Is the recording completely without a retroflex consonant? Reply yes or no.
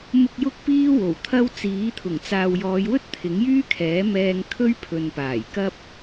yes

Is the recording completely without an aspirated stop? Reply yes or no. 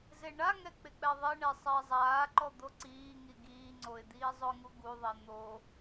yes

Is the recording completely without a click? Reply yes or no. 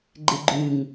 no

